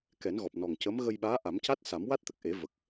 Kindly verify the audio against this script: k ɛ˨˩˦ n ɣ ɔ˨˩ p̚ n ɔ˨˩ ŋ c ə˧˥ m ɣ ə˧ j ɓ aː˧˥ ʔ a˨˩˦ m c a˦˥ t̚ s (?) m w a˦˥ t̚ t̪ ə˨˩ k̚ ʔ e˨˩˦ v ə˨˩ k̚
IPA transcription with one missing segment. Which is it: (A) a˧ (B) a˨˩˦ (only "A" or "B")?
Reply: B